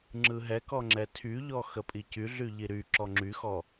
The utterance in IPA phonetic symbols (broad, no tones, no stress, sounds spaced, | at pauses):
ŋ͡ǁ ɯ ɦ ɛ k ɔ ŋ͡ǁ ɛ tʰ y ʎ ɔ x ə pʼ i c y ɮ y ʎ i ɾ y ǁ ɔ ŋ͡ǁ y x ɔ